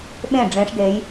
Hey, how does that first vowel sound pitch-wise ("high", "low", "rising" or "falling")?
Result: falling